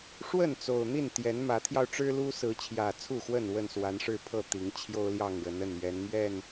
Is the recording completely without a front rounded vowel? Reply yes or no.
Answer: yes